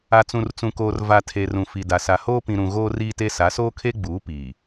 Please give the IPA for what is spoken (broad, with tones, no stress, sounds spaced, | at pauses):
a˨ t͡s ũ˨ r t͡s ũ˨ k oː˨ r v a˨ tʰ e˨ r ũ˨ f i˨ d a˨ s a˨ h oː˦ p ĩ˨ ɾ ũ˨ ɣ oː˦ r iː˦ t e˦ s a˨˦ s oː˦ kʰ e˦ ɡ͡b uː˨˦ p iː˨